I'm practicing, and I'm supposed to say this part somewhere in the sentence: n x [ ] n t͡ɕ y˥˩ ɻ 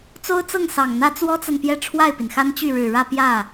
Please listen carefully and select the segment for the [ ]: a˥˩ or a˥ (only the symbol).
a˥